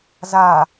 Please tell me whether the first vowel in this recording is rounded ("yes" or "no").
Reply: no